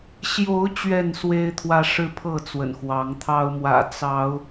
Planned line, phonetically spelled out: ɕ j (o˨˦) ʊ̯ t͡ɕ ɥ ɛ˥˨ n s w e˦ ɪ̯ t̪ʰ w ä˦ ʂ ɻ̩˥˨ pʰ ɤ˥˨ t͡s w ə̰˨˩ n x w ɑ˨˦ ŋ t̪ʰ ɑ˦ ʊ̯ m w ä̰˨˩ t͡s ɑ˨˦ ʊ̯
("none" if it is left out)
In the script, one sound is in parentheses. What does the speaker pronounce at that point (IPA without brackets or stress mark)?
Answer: o˨˦